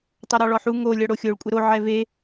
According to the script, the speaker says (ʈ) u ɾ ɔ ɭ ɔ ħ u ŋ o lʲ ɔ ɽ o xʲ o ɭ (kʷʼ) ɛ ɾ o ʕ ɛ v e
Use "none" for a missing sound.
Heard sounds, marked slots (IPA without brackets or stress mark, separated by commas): tˤ, kʷʼ